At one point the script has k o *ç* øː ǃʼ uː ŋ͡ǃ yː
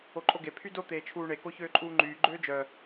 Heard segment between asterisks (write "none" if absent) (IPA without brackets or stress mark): ç